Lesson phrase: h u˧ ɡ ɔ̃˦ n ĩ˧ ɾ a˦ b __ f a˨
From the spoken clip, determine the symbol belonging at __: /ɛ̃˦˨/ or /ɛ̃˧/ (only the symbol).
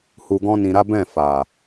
ɛ̃˦˨